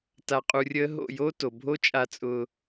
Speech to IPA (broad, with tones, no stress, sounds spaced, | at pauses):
t a˧ qʼ u˧ rʲ əː˦ ɦ o̰˦˨ j oː˦ t o˨ bʱ o˦ t͡ʃʼ a˧ t͡sʼ ʊː˧